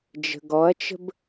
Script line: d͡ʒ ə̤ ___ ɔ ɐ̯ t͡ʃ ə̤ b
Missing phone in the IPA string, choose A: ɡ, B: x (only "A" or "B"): A